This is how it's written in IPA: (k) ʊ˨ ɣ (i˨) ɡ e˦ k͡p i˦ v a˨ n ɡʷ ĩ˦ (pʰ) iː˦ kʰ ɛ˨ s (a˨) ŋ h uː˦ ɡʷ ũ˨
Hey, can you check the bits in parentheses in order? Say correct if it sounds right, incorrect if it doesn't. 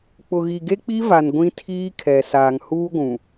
incorrect, correct, incorrect, incorrect

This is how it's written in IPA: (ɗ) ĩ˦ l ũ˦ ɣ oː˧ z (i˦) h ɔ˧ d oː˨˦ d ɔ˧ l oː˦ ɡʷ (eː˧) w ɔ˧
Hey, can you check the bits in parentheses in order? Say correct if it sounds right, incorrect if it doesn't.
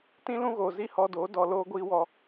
incorrect, correct, incorrect

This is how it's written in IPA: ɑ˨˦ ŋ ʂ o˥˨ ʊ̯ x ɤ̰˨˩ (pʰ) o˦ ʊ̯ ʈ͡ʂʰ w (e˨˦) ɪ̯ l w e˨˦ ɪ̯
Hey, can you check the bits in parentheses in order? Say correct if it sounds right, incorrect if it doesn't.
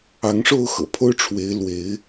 correct, correct

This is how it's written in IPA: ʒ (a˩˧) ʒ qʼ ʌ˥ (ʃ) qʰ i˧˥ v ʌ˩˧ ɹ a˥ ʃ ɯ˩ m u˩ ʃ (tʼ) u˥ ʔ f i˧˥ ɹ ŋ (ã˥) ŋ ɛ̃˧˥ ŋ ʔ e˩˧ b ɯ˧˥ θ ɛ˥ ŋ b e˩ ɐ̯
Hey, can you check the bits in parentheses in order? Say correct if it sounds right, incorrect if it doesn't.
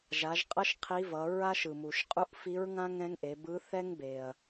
correct, correct, incorrect, correct

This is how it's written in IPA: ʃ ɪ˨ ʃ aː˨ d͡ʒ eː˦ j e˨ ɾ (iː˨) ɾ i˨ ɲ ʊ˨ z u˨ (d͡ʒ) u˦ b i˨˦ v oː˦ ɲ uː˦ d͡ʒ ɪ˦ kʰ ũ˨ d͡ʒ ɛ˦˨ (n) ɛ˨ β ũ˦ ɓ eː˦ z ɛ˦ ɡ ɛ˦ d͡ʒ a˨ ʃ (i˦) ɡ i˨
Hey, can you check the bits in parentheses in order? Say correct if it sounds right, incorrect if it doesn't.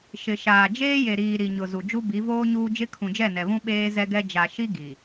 correct, correct, correct, correct

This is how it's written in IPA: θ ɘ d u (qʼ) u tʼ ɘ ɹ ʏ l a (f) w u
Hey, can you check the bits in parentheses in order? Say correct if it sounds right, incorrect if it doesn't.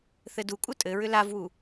incorrect, incorrect

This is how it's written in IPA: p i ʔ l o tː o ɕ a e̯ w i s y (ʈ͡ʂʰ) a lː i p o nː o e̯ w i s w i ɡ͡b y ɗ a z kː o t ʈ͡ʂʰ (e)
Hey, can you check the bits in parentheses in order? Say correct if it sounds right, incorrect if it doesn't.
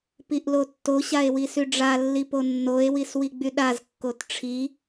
incorrect, incorrect

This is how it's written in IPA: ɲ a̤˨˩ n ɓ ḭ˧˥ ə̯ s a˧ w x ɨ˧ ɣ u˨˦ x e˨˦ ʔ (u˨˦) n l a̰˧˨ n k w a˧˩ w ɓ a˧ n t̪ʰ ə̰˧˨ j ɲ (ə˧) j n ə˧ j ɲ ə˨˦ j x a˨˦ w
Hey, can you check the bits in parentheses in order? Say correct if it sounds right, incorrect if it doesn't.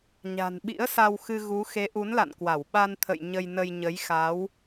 correct, correct

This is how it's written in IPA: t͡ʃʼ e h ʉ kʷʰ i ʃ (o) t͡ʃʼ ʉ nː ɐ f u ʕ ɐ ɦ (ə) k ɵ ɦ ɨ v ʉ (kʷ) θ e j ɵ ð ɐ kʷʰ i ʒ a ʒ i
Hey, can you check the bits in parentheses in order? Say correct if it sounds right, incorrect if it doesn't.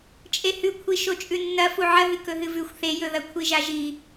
correct, incorrect, incorrect

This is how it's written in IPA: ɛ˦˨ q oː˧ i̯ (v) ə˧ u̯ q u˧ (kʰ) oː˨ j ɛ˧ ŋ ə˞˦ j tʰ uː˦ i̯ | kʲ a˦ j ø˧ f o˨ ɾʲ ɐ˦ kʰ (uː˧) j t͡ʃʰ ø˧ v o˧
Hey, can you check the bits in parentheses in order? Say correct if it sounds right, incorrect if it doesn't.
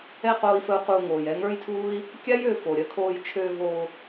incorrect, incorrect, incorrect

